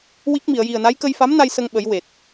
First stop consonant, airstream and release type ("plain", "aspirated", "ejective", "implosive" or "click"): plain